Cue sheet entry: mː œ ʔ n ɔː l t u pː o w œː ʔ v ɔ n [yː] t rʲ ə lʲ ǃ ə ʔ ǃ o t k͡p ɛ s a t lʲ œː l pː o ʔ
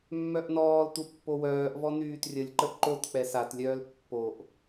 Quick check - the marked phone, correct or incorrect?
correct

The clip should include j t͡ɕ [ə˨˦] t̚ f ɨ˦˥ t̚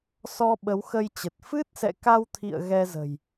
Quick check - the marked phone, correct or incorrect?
incorrect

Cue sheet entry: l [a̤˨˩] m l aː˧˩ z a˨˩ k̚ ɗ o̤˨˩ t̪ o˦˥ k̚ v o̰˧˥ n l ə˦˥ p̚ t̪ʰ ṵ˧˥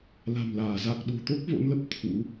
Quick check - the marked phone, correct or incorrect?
correct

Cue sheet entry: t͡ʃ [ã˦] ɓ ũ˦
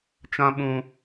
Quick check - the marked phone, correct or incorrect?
correct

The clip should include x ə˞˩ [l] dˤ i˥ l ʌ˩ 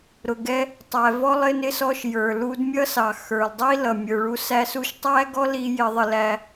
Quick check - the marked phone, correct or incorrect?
correct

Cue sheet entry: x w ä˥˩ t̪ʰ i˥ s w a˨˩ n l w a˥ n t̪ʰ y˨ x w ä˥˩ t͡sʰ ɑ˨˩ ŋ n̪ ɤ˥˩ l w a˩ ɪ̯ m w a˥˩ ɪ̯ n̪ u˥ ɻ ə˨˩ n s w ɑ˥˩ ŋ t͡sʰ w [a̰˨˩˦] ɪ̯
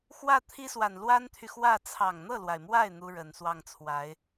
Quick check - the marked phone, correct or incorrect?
incorrect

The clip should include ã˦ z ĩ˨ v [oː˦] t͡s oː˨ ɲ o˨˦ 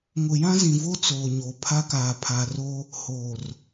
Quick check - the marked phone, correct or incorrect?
incorrect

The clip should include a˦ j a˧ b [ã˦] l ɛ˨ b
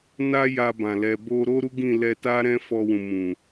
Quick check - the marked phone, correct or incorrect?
incorrect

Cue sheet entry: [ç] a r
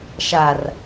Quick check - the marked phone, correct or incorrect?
incorrect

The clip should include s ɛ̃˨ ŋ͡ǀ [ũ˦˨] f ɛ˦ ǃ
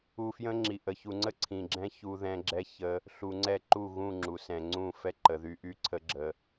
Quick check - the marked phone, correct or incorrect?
correct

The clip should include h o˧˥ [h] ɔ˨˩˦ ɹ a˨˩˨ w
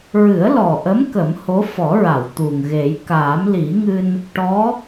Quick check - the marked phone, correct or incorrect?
incorrect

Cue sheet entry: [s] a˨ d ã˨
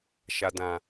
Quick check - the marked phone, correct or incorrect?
incorrect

